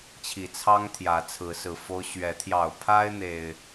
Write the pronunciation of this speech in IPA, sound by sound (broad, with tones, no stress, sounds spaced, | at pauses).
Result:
t͡ɕʰ i˨˩ t͡sʰ ɑ˦ ŋ t̪ʰ j ä˨˦ t͡sʰ ɹ̩˨˦ s ɹ̩˨˩ f o˦ ʊ̯ ɕ ɥ ɛ˨˦ t̪ʰ j ɑ˨˩ ʊ̯ pʰ a˦ ɪ̯ n̪ e˨˩ ɪ̯